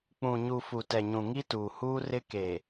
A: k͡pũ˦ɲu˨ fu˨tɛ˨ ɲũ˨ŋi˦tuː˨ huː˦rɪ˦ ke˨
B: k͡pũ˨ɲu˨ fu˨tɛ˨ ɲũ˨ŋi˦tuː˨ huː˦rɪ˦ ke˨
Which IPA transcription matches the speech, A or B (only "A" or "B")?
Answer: B